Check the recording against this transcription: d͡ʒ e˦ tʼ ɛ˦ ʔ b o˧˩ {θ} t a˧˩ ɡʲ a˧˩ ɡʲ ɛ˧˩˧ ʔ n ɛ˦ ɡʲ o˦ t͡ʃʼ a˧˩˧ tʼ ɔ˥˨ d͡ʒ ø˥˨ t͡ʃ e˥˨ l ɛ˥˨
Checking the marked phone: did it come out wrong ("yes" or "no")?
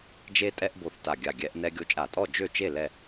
no